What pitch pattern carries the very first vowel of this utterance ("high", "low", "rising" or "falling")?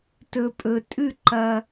low